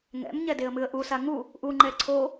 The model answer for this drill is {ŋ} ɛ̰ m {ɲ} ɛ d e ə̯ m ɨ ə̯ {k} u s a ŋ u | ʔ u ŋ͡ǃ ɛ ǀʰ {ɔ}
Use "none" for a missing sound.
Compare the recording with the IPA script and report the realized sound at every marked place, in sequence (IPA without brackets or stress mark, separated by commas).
ŋ, ɲ, ʔ, o